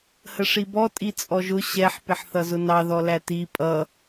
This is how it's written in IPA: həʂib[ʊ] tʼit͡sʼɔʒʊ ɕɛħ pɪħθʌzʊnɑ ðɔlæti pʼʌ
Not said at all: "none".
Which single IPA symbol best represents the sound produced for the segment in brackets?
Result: ɔ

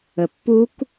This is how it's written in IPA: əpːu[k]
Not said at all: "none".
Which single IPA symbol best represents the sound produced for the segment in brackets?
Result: k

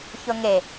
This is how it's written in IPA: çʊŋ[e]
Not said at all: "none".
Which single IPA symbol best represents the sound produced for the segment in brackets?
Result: e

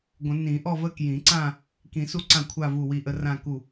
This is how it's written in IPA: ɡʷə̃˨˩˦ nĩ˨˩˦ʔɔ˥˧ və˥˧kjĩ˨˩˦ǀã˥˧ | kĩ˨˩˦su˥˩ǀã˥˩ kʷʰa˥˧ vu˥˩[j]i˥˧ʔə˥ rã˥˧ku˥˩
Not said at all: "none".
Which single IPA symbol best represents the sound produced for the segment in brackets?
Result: w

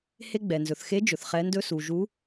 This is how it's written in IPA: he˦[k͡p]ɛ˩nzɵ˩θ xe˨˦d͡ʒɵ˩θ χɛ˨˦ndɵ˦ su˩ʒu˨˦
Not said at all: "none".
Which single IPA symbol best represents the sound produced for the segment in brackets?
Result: ɡ͡b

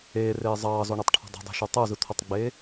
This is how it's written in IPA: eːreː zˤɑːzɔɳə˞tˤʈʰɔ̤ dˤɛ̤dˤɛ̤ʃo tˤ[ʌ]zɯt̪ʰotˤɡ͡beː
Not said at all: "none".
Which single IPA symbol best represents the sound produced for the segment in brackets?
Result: ə˞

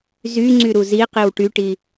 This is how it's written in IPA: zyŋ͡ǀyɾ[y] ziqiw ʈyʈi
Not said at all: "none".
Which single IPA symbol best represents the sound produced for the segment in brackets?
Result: u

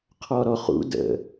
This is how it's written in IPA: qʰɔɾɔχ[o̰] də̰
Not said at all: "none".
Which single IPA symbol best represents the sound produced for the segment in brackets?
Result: ṵ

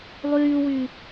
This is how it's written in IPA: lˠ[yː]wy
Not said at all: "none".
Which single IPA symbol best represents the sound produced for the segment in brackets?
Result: yː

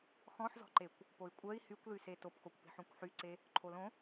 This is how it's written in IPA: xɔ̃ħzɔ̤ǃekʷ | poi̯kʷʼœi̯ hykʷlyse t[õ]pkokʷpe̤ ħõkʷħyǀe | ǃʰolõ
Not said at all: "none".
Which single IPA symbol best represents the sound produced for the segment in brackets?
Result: o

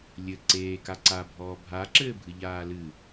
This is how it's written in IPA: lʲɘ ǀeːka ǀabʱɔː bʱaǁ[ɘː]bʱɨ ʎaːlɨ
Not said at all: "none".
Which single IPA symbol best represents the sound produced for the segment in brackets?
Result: ɘː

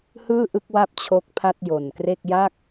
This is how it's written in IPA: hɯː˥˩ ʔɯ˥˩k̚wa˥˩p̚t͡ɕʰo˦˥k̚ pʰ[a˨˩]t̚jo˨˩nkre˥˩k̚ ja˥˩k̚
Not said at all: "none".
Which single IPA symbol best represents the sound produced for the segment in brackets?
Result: a˥˩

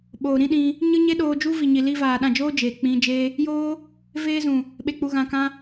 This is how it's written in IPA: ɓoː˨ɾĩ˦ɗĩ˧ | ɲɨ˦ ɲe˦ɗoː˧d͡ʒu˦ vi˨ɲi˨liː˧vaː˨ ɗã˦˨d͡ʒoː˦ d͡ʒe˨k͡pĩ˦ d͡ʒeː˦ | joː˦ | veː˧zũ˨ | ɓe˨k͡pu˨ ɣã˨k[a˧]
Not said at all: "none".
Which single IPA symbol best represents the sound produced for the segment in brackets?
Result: ã˧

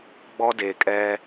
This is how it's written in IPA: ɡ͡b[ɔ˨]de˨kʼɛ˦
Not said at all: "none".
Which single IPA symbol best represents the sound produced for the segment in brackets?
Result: ɔ˦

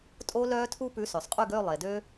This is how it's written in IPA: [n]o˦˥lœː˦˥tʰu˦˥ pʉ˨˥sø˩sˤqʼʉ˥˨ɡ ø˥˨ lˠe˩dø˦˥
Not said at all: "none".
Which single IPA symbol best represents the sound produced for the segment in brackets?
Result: tʼ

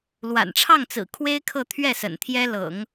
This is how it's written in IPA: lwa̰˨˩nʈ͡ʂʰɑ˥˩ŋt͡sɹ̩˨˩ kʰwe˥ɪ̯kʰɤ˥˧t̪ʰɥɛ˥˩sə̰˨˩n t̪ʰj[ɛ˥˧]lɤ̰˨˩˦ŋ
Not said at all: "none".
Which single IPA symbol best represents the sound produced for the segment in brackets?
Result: ɛ˥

